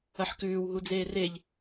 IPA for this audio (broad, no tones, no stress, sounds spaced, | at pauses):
ɐ ħ k ʉː w ɦ u d͡z eː r e ʎ